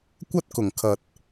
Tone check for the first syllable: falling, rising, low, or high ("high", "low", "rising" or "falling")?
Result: high